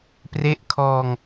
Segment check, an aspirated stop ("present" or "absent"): present